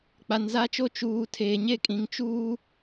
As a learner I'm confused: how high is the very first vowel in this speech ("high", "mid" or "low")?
low